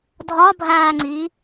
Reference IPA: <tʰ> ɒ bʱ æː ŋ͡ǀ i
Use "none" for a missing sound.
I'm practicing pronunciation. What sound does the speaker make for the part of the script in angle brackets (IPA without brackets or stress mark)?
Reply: dʱ